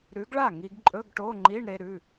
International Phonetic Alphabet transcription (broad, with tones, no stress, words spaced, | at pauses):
ɾʉ˨˥ɡɭa˥˩ ŋi˧ɡǃʼɵ˧˥˧ɡ ʈo˧˥˧ŋ͡ǃi˧˥˧ɳ ɾe˧ɾʉ˩˧˩